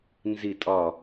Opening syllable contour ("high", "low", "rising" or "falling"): low